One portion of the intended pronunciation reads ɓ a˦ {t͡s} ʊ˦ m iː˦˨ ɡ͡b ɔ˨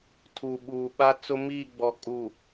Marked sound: correct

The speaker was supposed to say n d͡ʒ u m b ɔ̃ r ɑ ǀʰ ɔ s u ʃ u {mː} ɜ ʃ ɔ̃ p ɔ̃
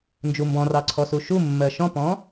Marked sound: correct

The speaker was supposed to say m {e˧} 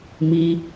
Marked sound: incorrect: i˧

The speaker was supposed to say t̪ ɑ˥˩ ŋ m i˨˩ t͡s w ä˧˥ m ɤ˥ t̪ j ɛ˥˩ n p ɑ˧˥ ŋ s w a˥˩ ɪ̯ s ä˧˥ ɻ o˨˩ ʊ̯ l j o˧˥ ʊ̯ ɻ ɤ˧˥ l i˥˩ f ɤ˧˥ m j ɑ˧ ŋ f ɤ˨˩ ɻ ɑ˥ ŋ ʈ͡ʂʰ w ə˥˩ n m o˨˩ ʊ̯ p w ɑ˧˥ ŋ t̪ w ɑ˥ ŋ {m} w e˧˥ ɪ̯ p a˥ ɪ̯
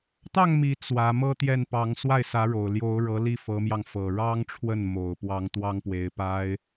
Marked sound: incorrect: p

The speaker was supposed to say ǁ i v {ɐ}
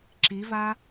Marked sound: incorrect: a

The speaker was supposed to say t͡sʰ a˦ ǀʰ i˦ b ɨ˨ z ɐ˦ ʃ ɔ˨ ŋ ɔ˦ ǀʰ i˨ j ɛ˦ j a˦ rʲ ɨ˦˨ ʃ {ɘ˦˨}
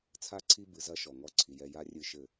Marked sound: correct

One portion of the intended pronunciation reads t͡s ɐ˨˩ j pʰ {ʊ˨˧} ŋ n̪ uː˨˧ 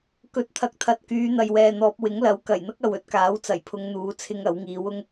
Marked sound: correct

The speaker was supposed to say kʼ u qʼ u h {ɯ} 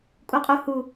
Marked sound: incorrect: u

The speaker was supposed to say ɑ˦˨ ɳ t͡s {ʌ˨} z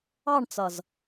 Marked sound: correct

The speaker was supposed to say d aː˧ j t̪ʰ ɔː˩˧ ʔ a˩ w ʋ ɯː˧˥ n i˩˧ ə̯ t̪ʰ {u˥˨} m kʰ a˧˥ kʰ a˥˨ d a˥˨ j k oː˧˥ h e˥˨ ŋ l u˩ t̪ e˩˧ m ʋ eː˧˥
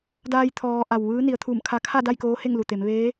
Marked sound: incorrect: u˧˩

